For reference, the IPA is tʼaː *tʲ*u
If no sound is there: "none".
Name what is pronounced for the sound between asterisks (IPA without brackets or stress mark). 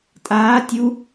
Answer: tʲ